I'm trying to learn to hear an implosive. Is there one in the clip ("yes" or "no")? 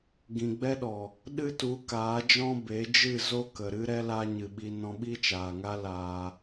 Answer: yes